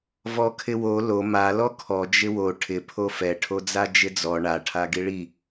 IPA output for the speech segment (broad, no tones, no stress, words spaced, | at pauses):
vɔkʰɪwo lo ma lɔkʰɔ d͡ʒɪwo ʈʰɪ pʰofɛ ʈʰod͡zad͡ʒɪd͡zɔ ɳa ʈʰaɡiɭi